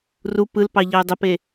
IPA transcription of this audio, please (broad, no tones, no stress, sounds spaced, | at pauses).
r u p ɯ l p ɑ ʎ ɑ ʊ̯ dˤ ə p e